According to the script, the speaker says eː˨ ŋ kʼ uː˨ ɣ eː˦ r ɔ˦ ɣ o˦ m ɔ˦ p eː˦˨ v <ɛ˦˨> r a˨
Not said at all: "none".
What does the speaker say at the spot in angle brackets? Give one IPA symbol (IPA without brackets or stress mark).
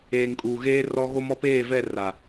ɛ˦˨